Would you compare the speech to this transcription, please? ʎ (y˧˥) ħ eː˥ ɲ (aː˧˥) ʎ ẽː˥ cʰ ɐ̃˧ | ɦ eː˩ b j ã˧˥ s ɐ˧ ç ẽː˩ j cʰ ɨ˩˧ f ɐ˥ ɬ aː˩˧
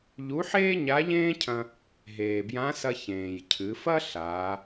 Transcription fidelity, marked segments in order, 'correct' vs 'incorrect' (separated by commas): incorrect, incorrect